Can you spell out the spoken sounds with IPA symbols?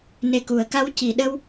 n e˨˩ k u˨˩˨ ə̯ k a˧ w c i˨˩˨ ɗ ə˧ w

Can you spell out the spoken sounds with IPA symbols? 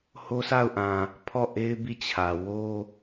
h o˦ s a˦˨ ʊ̯ ʔ ã˨ | pʰ ɔ˦˨ ʔ e˦ ɪ̯ b i˦˨ t͡ɕʰ ä˨ w o˦

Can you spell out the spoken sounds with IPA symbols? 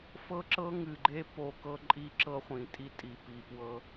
f ɤ˦ ǁ ɤ˦ ŋ ɨ˨ ɡ͡ǃ e˦ p o˦ k ɤ˦ ǃʼ i˦ ǁ ɤ˦ χʷ ĩ˨ tʼ i˦ tʼ i˨ p i˨ p w ɤ˦

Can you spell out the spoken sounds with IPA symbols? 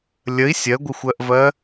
lʲ ə i̯ sʲ ɜ ɡʷ ɪ xʷ ɜ ʔ v ɜ

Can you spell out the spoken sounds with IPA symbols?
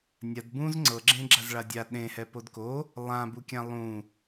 nʲ a d b ũ z ŋ͡ǀ ɤ ɡ͡ǁ ẽ ɡ͡ǁ a z ɭ a dʲ a ɗ ẽ h ɛ p o d k o | lˠ ã b u kʲ ã lˠ ũ

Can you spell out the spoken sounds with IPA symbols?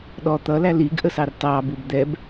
ɗ ɔ t̪ ʌ l æ l i ɡ ʔ ə s ɑ r t ɑ b u b d̪ ɛ b

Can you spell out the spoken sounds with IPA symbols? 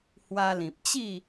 h w a˧ l ĩ˨ p̚ t͡ɕ i˥˧

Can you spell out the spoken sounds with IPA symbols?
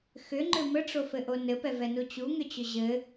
x ʏ ŋ͡ǃ ʏ m ə ʈ͡ʂ o f ɘ ʔ o n ɘ p ɛ v ɛ n u t͡ɕ u ŋ ʏ t͡ɕ ʏ ʑ ɘ

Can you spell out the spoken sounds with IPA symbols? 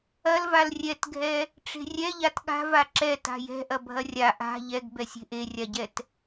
ɐ l v a l rʲ ɛ t ɡʱ ɛ | ʈ͡ʂ e̤ rʲ ɛ ʎ a t ɠ a̤ v a ǁ ɛ t a̤ j ɛ̤ ʔ ɐ bʱ ɐ rʲ a ʔ a̤ ʎ ɛ ɡ b ɛ sʲ e̤ ʔ e rʲ a ɟ ɛ t

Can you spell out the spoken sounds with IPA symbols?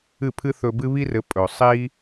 ɨ˥˩ pʰ ɨ˥ θ ɵ˧ b ɨ˥ β i˥ r ɘ˩˥ pʼ ɵ˩ sˤ i˥

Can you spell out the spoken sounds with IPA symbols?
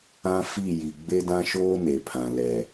ã˦ f i˦˨ j i˨ ɡ͡b e˦ d ã˦ ʃ oː˦ n e˨ pʰ ã˨ l ɛ˨

